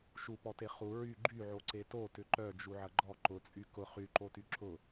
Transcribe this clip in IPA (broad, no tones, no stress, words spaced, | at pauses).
ʃupɔte χu ɹy ɡ͡ǃyʕoǀe totʏ ǃœd͡ʒuʕɐ ɡ͡ǃɔ ǃʊt͡sʼy kʊ χyǃoty ǁʊ